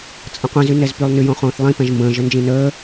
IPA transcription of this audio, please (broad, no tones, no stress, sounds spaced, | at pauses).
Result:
t͡sʼ ə̃ qʷ ĩ z y n ɛ z p y lˠ n y j õ χ õː θ lˠ ĩ p ɛ̃ ʒ m b ə̃ː ʒ ə n d͡ʒ ĩ n əː